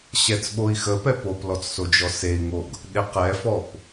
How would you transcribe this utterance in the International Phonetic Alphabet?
ɕ ɛ t͡s ɓ o i̯ x ə p ɛ p o p l ɔ t͡s s o d͡ʒ ɔ s e i̯ ŋ o ɡ | ɗ e q ɛ f ɔ p

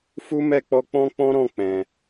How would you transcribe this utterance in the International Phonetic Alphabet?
f u˦ m ɛ˦˨ k͡p ɔ˧ k͡p ɔ̃˦ k͡p ɔ̃˦ ɾ ɔ̃˦˨ k͡p ɛ̃˨

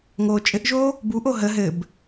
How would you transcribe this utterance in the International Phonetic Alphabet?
ŋ oː t͡ʃʼ ɘ ʔ ʒ oː | b u ʔ o ɦ ə ɦ ɘ b

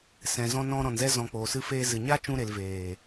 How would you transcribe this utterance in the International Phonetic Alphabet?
s ɛ̃˨ z ɔ̃˧ n ɔ̃˧ ɾ ɔ̃˨ n z ɛ˧ z ɔ̃˨ k͡p oː˨ s ɨ˧ f eː˧ z ɨ˨ ɲ a˦ t͡ʃ ũ˧ ɾ e˨ l v eː˨

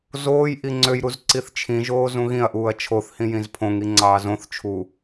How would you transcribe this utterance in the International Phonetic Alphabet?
z oː j ʔ i ŋ͡ǀ ø j ɾ u z ǀ i θ t͡ʃʰ ĩ ʒ oː z ũ ɣ ĩ ɐ̯ ʔ uː ɐ̯ t͡ʃʰ o θ h ĩ j ĩ z pʰ õ ŋ i ŋ͡ǀ ɑː z õ θ t͡ʃʰ u

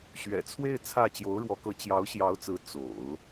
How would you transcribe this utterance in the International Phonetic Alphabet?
ɕ ɥ ɛ̰˨˩ t͡sʰ w e˥˧ ɪ̯ t͡sʰ ä˥˩ t͡ɕ j o˧˥ ʊ̯ ɻ w ɔ˧˥ k ɤ˧˥ t͡ɕ j ɑ˧˥ ʊ̯ ɕ j ɑ˧˥ ʊ̯ t͡s ɹ̩˧˥ t͡s o̰˨˩˦ ʊ̯

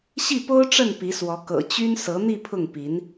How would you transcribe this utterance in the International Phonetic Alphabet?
ɕ i˥˩ p o˥ ʊ̯ ʈ͡ʂ ə˥˩ n p i˧˥ s w ɔ˧˥ k ɤ̰˨˩ t͡ɕ y˥ n s ɤ˧˥ n̪ i˥˧ pʰ ʊ˥˩ ŋ p i˧˥ n

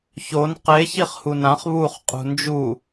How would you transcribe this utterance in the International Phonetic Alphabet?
ç o n q e ç i χ h u n ã χ β u χ qʼ ṳ n d͡ʒ u

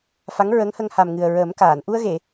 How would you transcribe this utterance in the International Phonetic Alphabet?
f a˧˥ ŋ ɹ ə˧˥ ŋ h ə˧ ŋ h a˨˩ m ŋ ɨ˨˩ ə̯ ɹ əː˨˩˦ m k aː˨˩˨ n ʔ u˧ ə̯ ɣ e˨˩˨

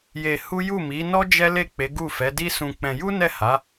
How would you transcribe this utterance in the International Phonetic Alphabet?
j e˧ h u˦ j u˦˨ m i˨˦ n ɔ˦ d͡ʒ ɛ˦ l e˦˨ k͡p e˨˦ ɡ u˦˨ f ɛ˨˦ d i˦ s ũ˧ k͡p ɛ̃˧ j u˦ n ɛ˦˨ h a˨˦

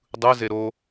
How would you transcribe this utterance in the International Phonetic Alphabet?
dˤ ɯ z e ɾ o

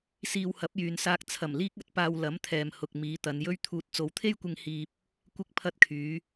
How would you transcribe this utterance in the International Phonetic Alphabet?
s iː˧ w h ɐ˨˥ p̚ j yː˨ n s aː˧ k̚ t͡sʰ ɐ˨˩ m l iː˧ k̚ ɐ˨ t̚ p aː˨ w l ɐ˨˥ m t̪ʰ ɛː˨ m h ʊ˨ k̚ m iː˨˧ t̪ ɐ˨˧ n j ɵ˥ ɥ t̪ʰ uː˧ t̚ t͡s o˨ w t̪ʰ e˥ j kʷ ɪ˧ ŋ h iː˨ p̚ | kʷ ɪ˧ k̚ pʰ ɐ˧ t̚ kʰ yː˨˧

